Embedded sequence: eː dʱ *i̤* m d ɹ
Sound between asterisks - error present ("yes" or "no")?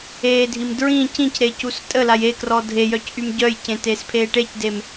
yes